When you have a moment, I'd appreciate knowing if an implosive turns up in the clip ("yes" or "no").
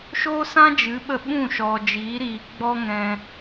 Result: yes